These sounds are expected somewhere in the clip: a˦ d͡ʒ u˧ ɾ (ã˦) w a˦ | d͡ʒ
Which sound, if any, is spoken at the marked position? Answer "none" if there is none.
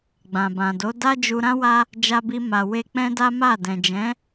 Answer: ã˦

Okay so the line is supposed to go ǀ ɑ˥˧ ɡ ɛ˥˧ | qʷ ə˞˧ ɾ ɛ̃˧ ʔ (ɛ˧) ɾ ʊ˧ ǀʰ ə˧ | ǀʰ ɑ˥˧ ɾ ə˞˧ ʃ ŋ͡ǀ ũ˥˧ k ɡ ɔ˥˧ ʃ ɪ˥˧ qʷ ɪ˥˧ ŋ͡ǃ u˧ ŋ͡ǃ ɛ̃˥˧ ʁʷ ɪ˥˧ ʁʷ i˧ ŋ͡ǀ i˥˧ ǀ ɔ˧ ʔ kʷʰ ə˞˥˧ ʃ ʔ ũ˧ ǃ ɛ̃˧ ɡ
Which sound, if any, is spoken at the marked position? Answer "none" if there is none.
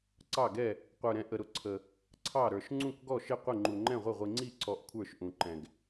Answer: ə˧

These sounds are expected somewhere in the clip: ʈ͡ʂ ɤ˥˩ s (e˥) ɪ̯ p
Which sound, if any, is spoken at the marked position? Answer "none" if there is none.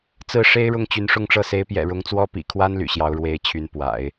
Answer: e˧˥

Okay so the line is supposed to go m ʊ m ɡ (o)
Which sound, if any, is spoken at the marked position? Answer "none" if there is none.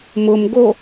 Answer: o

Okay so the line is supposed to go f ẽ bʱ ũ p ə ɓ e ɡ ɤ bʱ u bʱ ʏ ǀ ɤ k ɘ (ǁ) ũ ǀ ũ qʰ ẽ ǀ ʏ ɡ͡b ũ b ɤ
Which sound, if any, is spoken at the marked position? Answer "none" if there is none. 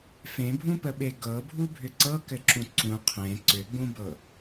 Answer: ǁ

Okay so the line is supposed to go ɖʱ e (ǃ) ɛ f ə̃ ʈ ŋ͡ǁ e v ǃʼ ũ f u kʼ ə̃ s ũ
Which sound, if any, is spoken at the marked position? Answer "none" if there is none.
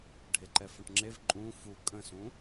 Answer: ǃ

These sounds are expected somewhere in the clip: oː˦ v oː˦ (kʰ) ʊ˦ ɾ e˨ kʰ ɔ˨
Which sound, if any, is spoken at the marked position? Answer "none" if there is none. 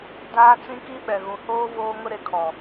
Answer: ŋ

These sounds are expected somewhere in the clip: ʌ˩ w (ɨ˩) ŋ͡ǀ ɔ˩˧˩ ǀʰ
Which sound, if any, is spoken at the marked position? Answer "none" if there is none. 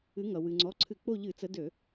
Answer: ɨ˩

